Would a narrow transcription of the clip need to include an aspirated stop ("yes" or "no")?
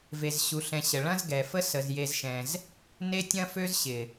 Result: no